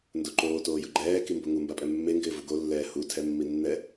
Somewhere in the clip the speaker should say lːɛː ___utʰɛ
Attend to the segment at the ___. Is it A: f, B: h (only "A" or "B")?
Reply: B